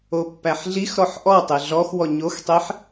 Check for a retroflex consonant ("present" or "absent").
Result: absent